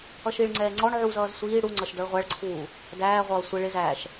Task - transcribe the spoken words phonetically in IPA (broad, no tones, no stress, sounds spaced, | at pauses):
ʌ ʃ i ɭ ŋ͡ǀ ɛː ŋ͡ǀ ɔ ɳ ʕ u z ʌː z sʷ iː ɽ u ŋ͡ǀ ʌ ʃ d ɔ ɭ ʁʷ æ ɭ ǀʰ uː | d æː ʁʷ ʌː sʷ ɪ ɭ ɪ z æː ʃ